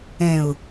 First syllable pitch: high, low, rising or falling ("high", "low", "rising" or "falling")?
low